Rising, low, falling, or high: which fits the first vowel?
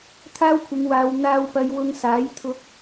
high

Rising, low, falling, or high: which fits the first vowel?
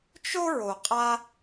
high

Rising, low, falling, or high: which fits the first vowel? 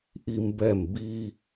high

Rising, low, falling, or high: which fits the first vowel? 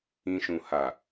low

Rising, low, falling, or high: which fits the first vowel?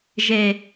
low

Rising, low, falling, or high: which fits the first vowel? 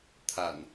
low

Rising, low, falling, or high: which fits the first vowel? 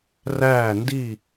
falling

